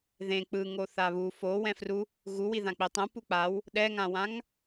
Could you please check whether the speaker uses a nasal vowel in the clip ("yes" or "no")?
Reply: yes